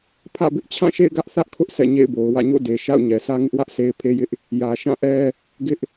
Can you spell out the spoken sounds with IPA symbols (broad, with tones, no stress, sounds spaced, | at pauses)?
pʰ ä̰˦˨ b ɪ˦ ʔ t͡ɕʰ ã˦˨ ʃ ḛ˦˨ ɪ̯ ɡ ä˦ ʔ θ ä˦ ʔ kʰ ʊ˦ ʔ sʰ ɛ̰˦˨ ɲ ḛ˦˨ ɪ̯ b o˨ ʊ̯ w ä̰˦˨ ɲ o̰˦˨ d e˨ ʃ a̰˦˨ ʊ̯ ɲ ɛ˨ s ä˦ ŋ ɪ˦ ʔ w ä˦ ʔ s e˦ ɪ̯ pʰ e˦ j ɪ˦ ʔ | j ä˨ ʃ ã˦˨ ʔ ɛ˦ | ɡ ɪ˦ ʔ